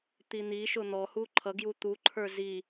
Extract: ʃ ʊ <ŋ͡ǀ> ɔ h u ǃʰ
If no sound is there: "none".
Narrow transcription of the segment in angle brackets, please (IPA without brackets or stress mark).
n̪